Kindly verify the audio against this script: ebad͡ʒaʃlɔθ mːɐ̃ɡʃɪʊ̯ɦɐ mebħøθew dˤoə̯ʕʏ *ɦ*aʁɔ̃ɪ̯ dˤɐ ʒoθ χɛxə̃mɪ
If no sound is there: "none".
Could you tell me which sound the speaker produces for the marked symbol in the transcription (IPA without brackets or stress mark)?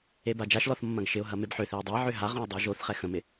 ɦ